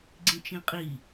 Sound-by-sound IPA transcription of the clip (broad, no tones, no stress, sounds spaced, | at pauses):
ɡ͡ǀ ĩ t͡ʃ ĩ qʼ i